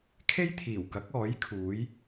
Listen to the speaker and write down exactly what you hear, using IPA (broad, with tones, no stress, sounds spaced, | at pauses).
kʰ e˥ j t̪ʰ iː˨˩ w k ɐ˨˥ k̚ ɔː˨˥ j kʰ uː˨˥ j